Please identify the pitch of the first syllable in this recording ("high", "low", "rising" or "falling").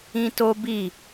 high